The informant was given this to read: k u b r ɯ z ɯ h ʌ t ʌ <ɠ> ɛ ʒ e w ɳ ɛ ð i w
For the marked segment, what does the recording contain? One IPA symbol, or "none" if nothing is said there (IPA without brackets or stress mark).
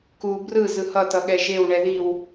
ɠ